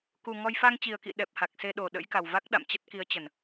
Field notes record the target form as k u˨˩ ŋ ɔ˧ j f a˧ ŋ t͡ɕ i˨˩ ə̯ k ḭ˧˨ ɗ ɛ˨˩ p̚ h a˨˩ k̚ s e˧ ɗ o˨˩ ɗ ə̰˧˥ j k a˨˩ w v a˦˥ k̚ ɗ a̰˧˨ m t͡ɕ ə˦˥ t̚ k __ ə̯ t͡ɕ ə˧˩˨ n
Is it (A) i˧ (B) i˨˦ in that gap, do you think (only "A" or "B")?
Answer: B